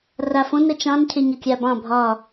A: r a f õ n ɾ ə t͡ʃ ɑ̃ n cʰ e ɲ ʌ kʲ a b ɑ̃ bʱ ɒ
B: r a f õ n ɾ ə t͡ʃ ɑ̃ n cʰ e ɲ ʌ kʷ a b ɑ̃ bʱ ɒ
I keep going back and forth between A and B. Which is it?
A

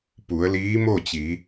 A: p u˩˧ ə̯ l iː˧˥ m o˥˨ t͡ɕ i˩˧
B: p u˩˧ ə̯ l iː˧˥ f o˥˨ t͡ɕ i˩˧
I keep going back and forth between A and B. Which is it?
A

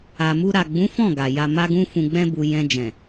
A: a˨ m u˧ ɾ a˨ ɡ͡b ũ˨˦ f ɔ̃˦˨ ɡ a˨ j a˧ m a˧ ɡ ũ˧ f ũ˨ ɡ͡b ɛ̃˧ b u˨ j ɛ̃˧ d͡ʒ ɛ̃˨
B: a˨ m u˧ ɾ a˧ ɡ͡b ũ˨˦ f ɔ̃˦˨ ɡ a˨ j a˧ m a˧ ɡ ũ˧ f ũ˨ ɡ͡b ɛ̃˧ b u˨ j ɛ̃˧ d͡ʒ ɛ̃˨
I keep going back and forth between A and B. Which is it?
A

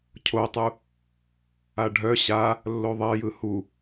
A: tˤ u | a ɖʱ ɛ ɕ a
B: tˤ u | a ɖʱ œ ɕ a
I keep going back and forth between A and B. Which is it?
B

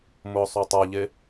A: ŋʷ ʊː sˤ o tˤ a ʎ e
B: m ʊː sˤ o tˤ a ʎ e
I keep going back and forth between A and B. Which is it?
B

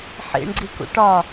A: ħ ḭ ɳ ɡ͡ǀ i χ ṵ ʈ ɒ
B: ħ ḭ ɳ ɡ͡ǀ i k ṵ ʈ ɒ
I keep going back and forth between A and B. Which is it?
B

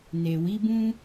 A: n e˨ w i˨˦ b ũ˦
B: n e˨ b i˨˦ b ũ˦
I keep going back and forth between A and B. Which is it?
A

